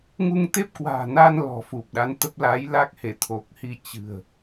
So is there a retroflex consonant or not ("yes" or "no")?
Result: no